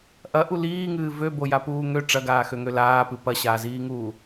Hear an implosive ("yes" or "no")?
no